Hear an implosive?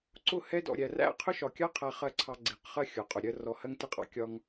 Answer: no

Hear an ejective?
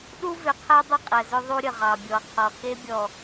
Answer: yes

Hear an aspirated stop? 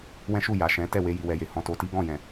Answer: no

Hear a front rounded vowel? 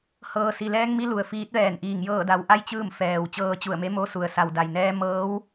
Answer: no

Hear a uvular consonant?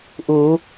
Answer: no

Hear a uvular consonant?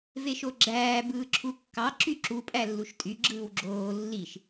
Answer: no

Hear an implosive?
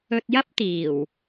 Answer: no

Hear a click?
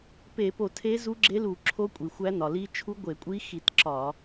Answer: yes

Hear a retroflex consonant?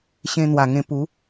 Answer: no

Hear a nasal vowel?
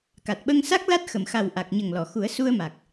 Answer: no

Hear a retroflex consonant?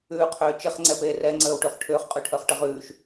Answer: yes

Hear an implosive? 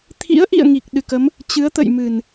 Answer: yes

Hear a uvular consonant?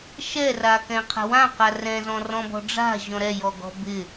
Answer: yes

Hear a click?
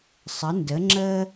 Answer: yes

